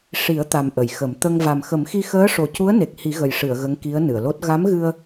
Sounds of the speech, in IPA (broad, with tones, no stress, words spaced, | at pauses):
ʂi˨˩˦ə̯t̪a˨˩m ʔə˨˩˨jxə˨˩˦m t̪ə˧ŋ va˨˩mxə˨˩˦mxi˧ xəː˧˥ʂo˨˩cu˧˥ə̯ne˨˩k̚ hi˨˩˦ɣə˨˩jʂɨ˨˩˨ə̯ ɣə˧˥ŋki˧˥ə̯nɨ˨˩˨ə̯lo˦˥t̚ ɣa˧˥mɣɨ˧ə̯